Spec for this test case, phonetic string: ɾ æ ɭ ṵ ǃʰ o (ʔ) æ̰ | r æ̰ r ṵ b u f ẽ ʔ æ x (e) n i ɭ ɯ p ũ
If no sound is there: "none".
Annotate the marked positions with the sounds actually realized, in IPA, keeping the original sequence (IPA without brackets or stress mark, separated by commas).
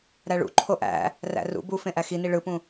ʔ, i